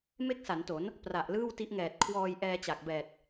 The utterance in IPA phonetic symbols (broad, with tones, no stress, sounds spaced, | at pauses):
m e˥˩ k̚ s a˩˦ n t o˩˦ n | p r a˨˩ ʔ l ɯː˥˩ w t i˦˥ ʔ ŋ ɛː˨˩ t̚ kʰ w ɔː˧ j ʔ ɛː˧ t͡ɕ a˨˩ k̚ b ɛː˨˩ t̚